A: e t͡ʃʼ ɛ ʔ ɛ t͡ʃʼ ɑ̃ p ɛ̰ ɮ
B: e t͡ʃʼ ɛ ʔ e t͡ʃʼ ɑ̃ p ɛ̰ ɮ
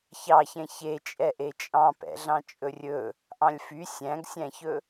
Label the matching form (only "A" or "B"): B